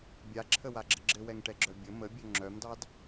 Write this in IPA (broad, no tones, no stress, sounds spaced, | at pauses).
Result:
bʲ a ǁʰ ə w a ɡ͡ǁ ə ɡ͡ǁ ɘ w ɛ ŋ ʈ ɛ ɡ͡ǁ œ bʲ ə m ə bʲ œ ŋ͡ǁ œ m d ɑ d